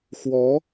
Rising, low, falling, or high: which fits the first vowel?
rising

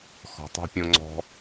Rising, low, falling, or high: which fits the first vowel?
low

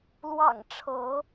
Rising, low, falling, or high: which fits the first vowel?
low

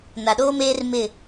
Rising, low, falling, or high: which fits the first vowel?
low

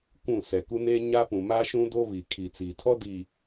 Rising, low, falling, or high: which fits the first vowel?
falling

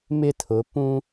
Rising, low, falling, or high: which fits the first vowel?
falling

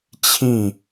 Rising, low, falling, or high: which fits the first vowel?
falling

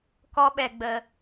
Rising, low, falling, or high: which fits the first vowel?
high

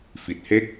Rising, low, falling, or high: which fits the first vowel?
low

